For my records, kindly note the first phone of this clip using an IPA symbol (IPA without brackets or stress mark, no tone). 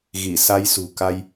ɣ